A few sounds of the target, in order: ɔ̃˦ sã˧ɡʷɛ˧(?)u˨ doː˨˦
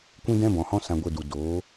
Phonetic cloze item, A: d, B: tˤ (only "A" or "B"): A